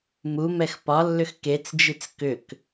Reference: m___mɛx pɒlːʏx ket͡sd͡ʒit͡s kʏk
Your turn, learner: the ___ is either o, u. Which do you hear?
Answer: u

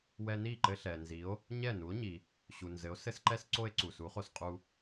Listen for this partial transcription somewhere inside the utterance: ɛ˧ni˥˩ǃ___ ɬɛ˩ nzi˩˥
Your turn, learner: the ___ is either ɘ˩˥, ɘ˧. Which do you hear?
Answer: ɘ˧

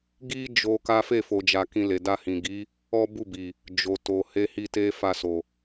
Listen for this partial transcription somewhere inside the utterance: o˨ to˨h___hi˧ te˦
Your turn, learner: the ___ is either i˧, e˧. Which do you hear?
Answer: e˧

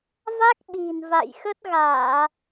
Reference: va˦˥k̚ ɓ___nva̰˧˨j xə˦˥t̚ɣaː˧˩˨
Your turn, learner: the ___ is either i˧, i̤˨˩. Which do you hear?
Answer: i̤˨˩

